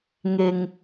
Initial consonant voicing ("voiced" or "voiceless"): voiced